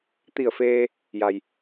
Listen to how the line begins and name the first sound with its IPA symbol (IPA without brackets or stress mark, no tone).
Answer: t̪